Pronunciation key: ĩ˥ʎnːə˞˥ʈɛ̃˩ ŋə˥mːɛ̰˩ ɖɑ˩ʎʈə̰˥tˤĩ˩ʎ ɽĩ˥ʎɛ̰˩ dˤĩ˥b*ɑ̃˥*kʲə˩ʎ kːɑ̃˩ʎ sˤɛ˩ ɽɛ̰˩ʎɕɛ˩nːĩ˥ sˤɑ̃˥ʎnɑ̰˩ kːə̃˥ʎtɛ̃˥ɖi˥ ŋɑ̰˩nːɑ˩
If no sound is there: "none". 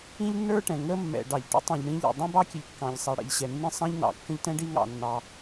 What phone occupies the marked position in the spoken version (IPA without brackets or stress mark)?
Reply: ɑ˥